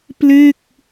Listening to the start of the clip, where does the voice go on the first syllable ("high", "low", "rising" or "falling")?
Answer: falling